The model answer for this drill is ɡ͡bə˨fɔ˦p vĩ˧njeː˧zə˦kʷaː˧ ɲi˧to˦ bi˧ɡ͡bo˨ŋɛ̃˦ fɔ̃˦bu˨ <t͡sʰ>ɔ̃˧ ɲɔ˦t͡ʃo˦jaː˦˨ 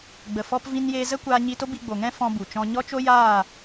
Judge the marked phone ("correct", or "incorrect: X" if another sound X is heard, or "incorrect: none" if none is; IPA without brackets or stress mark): incorrect: t͡ʃ